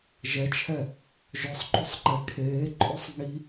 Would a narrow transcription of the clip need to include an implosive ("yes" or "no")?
no